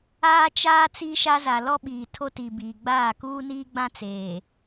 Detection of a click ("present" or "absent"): absent